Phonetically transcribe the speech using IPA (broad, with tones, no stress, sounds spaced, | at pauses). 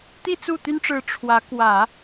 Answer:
t̪ i˥˧ t͡s u˥˩ t̪ y˥ n ʈ͡ʂ ɻ̩˧˥ ʈ͡ʂʰ w ä˧˥ k w ä˨˩˦